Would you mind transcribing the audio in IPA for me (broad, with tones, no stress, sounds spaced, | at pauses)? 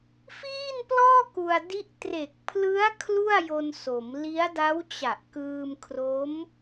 f iː˥˩ n p l ɔː˥˩ k u˧ a̯ d i˦˥ ʔ t r e˨˩ k̚ pʰ l ɯ˦˥ a̯ kʰ l u˥˩ a̯ j o˧ n s o˩˦ m l i˦˥ a̯ d a˦˥ w t͡ɕ a˨˩ ʔ k ɯː˧ m kʰ r o˦˥ m